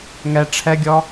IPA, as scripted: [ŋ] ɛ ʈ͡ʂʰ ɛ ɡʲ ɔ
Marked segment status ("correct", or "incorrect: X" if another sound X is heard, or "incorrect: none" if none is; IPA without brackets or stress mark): correct